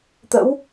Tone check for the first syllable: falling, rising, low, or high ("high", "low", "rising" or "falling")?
rising